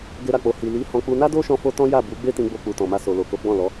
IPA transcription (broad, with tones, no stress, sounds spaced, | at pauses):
ɡ e˦ ɾ a˦˨ k͡p o˧ h i˨ l i˨˦ h ɔ̃˧ k͡p u˧ n a˦ d o˦ ʃ ɔ̃˧ f o˧ t ɔ̃˦ j a˦˨ b u˨˦ ɡ͡b e˦ t ĩ˧ ɡ͡b o˧ k͡p u˨ t ɔ̃˨ m a˧ s o˨ l o˨ k o˨˦ ɡ͡b ɔ̃˦˨ l ɔ˨˦